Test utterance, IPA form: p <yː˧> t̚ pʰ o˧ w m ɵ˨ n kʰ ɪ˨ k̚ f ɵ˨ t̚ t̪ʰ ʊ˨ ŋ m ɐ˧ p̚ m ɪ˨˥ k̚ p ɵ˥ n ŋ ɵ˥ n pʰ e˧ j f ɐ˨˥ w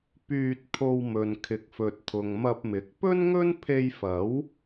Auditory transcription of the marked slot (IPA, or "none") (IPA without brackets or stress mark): yː˧